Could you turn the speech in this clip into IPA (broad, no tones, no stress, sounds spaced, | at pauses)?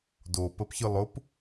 d o p ə p ç ɯ lˠ ʊ p